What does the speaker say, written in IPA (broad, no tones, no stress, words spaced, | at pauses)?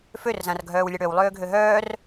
førzãr ɡʱœːwlʲaɽøw lˠøːɡʱøɦœːr